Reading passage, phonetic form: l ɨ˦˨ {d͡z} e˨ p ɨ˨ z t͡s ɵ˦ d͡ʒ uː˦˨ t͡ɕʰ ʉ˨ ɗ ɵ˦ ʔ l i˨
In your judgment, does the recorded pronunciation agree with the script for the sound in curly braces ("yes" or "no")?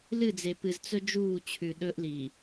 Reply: yes